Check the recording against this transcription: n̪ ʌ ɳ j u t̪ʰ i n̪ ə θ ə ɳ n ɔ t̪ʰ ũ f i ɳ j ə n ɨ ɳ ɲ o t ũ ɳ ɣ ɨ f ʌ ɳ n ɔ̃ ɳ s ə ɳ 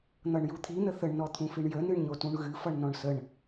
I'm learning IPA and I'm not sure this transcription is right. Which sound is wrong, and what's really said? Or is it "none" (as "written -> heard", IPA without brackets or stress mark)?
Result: none